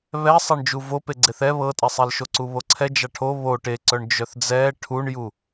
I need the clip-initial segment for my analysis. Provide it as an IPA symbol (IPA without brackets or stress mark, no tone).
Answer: β